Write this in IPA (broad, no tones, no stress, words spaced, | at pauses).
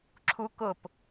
ǁʰu kʊp